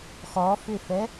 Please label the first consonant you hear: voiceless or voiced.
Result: voiceless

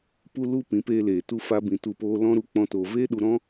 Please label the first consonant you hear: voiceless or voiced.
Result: voiceless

